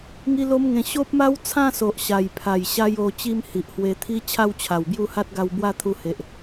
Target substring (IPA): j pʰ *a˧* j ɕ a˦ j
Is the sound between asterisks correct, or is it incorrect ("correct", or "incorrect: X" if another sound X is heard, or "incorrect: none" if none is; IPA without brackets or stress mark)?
incorrect: a˨˩